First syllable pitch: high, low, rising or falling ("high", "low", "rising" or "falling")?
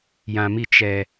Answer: low